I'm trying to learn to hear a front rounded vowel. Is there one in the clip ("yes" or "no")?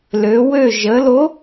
yes